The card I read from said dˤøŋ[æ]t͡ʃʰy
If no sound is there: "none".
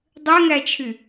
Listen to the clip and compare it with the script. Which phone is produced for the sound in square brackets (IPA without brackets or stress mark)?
æ